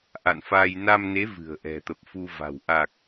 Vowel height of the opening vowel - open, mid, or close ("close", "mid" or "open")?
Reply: open